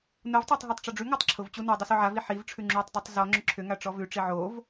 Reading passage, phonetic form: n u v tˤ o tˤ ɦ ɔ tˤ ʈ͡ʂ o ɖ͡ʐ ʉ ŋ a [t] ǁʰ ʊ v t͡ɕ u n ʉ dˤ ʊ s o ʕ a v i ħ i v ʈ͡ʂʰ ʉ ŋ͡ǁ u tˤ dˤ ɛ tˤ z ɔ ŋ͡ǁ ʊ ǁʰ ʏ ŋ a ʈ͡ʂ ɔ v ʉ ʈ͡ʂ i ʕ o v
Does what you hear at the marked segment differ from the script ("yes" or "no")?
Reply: yes